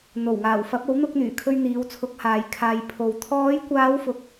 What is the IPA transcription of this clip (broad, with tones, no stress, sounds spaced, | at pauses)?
n̪ o˨˩ w ŋ aː˨˩ w f ɐ˨˥ p̚ o˨˥ w n̪ ʊ˧ k̚ n̪ yː˨˩ kʰ ɵ˧ ɥ n̪ iː˨˧ w t͡sʰ ʊ˨˥ k̚ h aː˨ j kʰ aː˨ j pʰ o˨ w t̪ʰ ɔː˨˧ j kʷ aː˨˧ w f ʊ˧ k̚